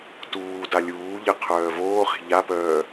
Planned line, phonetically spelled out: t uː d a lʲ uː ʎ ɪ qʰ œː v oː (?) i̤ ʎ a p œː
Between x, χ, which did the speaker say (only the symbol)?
χ